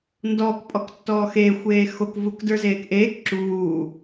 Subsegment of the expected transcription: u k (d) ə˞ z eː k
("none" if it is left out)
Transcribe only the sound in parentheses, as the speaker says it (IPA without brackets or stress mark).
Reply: d